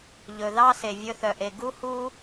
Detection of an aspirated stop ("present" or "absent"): absent